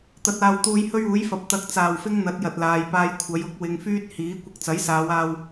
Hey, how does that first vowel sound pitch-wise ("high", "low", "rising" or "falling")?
low